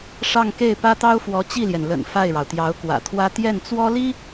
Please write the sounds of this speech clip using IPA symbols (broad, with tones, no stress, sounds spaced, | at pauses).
ʂ ɑ˥˧ ŋ k e˥˩ ɪ̯ p ä˥ t̪ ɑ˥ ʊ̯ f w ɔ˧˥ t͡ɕ i˥˩ l j ɛ˩ n l ə̰˨˩ n f a˥˩ ɪ̯ ɻ ɑ˩ ʊ̯ t̪ j ɑ˧˥ ʊ̯ k w ä̰˨˩ t̪ʰ w ä˥ t̪ j ɛ˥˩ n t͡s w ɔ˥ l i˥